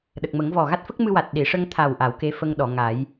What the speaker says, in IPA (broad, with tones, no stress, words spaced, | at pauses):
ɗə˨˩k̚mə˨˩˦ŋvɔ˨˩ ɣa˦˥t̚fə˦˥k̚mɨ˧wa˨˩t̚ ɗi˨˩˨ ʂə˧ŋt̪ʰa˨˩wʔa˨˩˨w ke˧˥fə˧ŋɗɔ˨˩˨ ŋa˨˩˦j